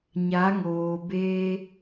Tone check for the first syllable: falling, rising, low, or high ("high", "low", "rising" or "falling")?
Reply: rising